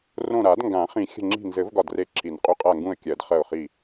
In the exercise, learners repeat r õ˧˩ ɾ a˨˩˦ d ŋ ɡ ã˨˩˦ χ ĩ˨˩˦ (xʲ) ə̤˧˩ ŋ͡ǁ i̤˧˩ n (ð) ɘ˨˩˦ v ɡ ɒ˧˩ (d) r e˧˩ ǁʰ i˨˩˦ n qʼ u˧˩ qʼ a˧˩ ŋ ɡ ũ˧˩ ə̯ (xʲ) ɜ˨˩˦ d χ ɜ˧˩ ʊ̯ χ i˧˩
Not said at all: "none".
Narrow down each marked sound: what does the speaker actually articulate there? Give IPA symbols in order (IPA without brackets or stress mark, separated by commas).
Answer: xʲ, z, d, kʲ